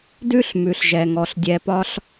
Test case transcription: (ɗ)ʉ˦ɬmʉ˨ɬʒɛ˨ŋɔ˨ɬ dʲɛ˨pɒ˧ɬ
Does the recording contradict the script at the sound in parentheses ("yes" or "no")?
yes